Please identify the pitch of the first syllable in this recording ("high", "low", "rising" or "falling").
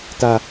low